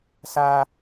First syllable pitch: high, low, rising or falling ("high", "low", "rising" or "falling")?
high